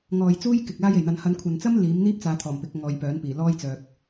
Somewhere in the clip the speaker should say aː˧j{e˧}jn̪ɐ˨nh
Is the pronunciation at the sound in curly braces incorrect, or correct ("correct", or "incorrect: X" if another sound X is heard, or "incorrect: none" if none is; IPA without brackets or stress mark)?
incorrect: e˨˩